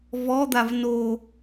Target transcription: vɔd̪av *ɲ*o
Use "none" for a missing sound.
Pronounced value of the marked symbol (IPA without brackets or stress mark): n